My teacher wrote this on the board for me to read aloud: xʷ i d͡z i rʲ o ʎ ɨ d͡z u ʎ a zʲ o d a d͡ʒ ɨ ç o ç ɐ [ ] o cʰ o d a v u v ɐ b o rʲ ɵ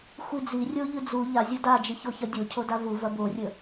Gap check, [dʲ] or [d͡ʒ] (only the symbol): dʲ